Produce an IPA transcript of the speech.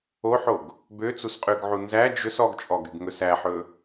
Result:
o ħ o ɡ | b ø t͡s u s qʼ ʉ ɡ ʕ u n z æ d͡ʒ ɵ s ɔ ɡ t͡ʃʼ ɔ ɡ y ɡ ŋ ɵ s æ ħ ɵ

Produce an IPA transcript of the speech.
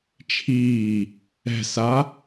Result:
t͡ʃʰ iː | ɛ̤ s a

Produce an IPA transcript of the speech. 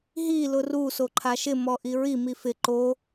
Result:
ɦ i l ʊ r u s o ǃʰ a ʃ ɪ m ɔ ʔ i ɹ i m i f ɪ ǃ o

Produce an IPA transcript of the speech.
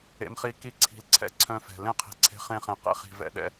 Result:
ḛ˧ m χ i˧ k i˦ ǀʰ i̤˧ l ǀʰ ɛ̰˦ ǀʰ œ̃˧ f ɛ̤˨ l ẽ˦ qʰ i̤˨ ǀʰ e̤˧ χ ẽ˧ χ ẽ˨ q ḛ˦ χ i̤˨ v ɛ̰˧ ɗ ɛ̰˧

